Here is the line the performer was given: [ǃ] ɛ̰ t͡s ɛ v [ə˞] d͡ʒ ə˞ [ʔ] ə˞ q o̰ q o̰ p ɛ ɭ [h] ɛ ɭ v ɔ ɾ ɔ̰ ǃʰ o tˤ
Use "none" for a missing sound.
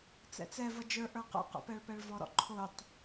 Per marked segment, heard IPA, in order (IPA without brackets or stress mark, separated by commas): t͡s, ʌ, ʔ, p